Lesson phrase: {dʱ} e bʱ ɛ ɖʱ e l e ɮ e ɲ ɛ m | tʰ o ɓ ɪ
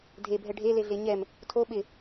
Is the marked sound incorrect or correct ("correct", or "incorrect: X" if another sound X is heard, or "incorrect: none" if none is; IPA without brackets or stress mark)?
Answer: correct